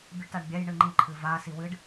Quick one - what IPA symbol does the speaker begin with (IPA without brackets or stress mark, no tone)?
bʲ